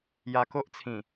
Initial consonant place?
palatal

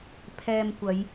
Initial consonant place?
labial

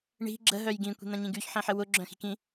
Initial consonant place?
retroflex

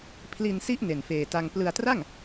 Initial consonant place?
labial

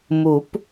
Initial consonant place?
labial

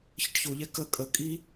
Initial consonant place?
palatal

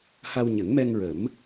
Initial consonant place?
glottal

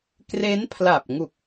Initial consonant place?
velar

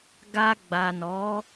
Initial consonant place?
velar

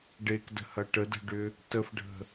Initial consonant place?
retroflex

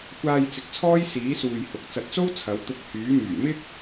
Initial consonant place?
velar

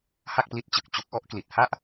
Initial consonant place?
glottal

